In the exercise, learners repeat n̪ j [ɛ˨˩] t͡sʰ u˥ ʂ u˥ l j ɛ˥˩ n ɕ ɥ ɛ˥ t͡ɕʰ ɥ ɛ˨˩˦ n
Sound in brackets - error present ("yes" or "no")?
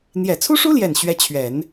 no